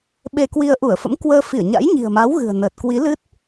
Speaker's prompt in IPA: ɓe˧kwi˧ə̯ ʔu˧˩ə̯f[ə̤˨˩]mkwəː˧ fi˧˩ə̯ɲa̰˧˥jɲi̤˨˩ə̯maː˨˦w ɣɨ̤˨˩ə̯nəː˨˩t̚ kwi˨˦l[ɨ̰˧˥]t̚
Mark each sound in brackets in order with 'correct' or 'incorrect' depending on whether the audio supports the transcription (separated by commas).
incorrect, incorrect